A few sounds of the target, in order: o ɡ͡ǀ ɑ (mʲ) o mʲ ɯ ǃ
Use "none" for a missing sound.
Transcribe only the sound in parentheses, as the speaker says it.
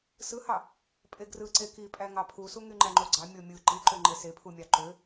mʲ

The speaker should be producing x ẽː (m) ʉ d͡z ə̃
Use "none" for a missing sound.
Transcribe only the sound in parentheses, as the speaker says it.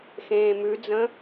m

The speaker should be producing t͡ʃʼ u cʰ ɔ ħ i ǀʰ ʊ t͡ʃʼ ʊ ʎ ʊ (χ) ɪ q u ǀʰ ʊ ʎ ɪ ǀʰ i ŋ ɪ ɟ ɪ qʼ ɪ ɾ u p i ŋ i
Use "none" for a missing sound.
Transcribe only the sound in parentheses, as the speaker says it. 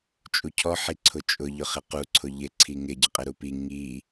χ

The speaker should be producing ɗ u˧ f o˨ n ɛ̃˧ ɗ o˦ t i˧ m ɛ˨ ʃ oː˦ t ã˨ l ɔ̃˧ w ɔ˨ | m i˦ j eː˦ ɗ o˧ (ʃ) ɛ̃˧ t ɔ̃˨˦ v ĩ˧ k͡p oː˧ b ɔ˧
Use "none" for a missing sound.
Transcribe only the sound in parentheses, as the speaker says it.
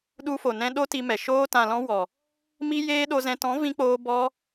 z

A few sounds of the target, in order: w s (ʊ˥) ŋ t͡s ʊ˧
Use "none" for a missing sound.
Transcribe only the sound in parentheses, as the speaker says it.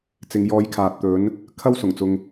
ʊ˨˩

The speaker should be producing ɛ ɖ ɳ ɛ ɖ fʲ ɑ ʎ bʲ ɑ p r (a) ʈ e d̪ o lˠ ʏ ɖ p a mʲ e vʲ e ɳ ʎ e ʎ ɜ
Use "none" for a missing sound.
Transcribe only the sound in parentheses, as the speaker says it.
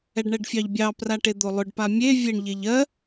a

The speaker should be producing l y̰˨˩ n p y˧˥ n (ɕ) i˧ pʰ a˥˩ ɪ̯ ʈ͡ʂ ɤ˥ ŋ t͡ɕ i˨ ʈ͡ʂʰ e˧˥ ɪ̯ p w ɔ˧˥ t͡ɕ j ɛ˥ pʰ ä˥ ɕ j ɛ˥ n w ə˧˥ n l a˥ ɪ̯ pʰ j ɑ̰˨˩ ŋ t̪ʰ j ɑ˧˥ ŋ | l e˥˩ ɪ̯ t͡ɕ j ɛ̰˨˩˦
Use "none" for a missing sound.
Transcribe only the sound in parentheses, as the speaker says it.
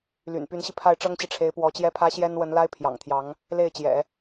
ɕ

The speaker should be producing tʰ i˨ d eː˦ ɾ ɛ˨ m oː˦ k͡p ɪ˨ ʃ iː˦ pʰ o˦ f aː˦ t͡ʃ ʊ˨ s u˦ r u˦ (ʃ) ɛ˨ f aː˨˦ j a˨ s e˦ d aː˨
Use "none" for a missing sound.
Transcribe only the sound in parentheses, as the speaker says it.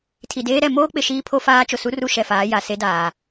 ʃ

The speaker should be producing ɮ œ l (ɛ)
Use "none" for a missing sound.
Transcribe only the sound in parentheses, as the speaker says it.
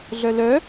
œ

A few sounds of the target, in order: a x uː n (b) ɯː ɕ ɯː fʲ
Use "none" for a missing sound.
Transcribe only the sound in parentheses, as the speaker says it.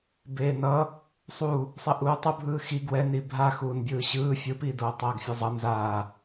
bʲ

